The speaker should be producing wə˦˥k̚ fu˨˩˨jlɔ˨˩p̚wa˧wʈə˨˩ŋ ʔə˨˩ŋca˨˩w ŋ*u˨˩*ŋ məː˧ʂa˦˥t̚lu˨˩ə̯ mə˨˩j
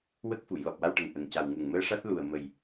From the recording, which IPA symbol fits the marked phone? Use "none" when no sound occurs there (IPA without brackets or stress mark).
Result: u˨˩